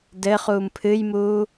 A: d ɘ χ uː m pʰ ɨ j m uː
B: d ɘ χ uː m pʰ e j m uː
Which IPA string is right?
A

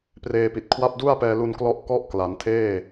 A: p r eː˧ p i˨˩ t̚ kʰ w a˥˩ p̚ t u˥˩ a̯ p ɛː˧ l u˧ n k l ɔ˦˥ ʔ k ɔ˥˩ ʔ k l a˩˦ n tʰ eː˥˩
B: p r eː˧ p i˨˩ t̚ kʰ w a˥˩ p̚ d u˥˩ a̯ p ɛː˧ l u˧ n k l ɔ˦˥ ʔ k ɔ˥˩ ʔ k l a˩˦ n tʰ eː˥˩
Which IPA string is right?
B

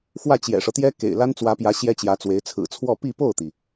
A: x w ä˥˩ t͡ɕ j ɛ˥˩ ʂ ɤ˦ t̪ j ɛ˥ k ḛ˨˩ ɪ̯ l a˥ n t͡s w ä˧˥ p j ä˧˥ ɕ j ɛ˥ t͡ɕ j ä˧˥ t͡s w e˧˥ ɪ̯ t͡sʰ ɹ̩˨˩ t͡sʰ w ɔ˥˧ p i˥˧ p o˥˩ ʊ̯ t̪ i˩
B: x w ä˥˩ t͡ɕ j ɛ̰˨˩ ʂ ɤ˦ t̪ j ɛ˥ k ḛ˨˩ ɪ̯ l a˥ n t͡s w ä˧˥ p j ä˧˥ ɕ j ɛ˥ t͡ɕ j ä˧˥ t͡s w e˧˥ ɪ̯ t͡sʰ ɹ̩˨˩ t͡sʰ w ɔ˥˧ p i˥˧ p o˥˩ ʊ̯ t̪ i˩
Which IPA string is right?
B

